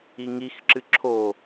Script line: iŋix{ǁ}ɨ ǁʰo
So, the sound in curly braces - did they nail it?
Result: yes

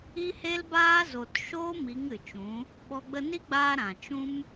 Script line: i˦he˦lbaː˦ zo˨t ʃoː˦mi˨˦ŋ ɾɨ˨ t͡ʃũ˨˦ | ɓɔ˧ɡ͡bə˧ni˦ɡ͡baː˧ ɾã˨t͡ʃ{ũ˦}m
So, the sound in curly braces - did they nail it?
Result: yes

